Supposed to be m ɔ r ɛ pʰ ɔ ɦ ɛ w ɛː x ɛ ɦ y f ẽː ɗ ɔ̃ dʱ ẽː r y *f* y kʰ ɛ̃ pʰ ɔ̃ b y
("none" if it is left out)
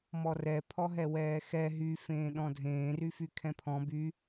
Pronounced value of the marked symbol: f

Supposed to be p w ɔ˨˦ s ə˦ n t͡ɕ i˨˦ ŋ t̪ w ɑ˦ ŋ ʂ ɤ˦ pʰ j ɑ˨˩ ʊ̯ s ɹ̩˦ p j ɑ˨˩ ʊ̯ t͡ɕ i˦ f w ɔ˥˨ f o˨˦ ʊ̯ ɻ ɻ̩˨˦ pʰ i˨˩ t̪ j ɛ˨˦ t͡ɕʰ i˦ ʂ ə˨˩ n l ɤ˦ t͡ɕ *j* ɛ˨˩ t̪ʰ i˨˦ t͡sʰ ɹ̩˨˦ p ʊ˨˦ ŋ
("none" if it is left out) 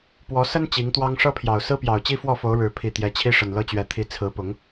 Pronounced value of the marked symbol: ɥ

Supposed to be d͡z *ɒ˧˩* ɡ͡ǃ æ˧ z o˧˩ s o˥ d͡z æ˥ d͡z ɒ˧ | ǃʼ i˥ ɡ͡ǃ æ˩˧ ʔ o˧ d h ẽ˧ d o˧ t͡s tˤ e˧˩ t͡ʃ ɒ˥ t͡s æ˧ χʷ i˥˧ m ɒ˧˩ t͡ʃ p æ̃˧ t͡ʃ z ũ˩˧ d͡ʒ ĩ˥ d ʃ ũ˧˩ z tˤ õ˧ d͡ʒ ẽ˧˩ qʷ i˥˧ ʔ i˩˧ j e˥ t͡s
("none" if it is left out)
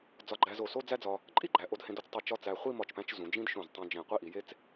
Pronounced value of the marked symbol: ɒ˧˩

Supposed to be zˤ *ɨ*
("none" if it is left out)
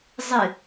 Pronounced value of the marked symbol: ɨ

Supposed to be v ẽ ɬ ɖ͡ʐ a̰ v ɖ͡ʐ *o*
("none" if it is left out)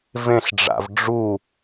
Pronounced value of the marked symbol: u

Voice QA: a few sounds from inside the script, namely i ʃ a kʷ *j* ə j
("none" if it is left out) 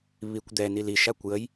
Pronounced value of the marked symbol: j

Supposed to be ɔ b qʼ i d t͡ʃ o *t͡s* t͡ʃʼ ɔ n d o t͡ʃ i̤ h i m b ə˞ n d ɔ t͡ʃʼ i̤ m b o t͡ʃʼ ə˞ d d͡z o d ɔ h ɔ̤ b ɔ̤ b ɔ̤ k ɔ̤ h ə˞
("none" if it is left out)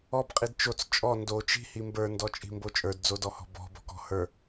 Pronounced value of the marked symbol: t͡s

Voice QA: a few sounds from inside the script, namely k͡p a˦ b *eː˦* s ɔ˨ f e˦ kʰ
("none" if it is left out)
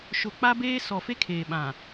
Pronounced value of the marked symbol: eː˦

